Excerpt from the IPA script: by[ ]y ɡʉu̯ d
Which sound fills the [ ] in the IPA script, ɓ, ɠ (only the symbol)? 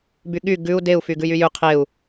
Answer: ɠ